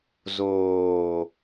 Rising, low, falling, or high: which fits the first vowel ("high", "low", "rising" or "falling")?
low